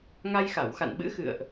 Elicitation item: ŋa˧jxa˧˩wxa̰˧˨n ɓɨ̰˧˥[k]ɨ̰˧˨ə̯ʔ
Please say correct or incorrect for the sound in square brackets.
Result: incorrect